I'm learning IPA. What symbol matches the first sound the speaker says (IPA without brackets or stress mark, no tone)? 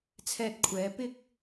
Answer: t͡sʰ